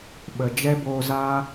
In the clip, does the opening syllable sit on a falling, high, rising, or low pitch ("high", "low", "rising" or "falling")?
low